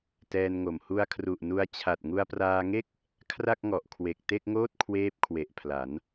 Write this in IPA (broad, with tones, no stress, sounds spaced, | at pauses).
t ɛː˧ n ŋ o˨˩ m h u˧ a̯ kʰ r u˨˩ ʔ n u˧ a̯ t͡ɕʰ a˨˩ t̚ ŋ u˧ a̯ p r aː˧ ŋ e˥˩ k̚ | kʰ r a˥˩ k̚ ŋ ɔ˨˩ ʔ kʰ w e˨˩ k̚ t e˥˩ k̚ ŋ oː˥˩ t̚ kʰ w eː˥˩ p̚ kʰ w e˨˩ ʔ pʰ l a˩˦ n